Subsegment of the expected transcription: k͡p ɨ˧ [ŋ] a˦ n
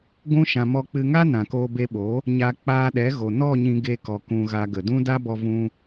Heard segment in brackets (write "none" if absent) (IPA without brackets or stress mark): ŋ